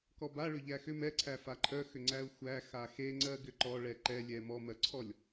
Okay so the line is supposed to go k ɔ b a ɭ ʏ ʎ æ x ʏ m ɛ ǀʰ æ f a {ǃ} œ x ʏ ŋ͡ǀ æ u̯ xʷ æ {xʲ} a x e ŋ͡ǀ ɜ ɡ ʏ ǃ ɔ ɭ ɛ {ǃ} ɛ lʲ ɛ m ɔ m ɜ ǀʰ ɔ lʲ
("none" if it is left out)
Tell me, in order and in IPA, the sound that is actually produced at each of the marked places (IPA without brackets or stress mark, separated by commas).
ǃʰ, x, ǃ